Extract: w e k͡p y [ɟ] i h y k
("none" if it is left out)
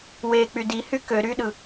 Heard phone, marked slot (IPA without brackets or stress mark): d